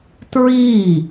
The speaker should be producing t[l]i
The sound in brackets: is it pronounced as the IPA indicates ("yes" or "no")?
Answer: no